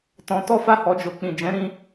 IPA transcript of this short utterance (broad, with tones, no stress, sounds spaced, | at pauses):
t ɔ̃˧ t ɔ˦ f a˦˨ h ɔ˨ d͡ʒ o˨ k͡p ĩ˨ d͡ʒ ɛ̃˨˦ ɾ ĩ˧